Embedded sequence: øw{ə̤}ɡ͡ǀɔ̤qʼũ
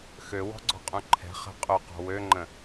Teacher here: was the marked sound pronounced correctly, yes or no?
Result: no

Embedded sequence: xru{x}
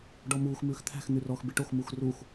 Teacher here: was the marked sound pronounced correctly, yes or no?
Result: yes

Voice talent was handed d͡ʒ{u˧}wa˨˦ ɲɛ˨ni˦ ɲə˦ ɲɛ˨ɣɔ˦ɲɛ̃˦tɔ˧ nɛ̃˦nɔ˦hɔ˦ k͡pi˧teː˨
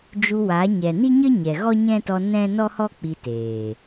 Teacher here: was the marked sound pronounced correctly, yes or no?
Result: yes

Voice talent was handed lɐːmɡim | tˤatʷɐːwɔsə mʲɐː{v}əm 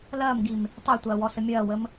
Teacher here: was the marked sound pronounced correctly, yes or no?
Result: no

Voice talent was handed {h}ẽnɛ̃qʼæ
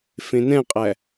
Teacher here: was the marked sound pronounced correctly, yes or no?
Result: no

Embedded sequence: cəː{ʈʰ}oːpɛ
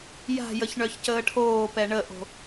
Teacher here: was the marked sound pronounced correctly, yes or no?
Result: yes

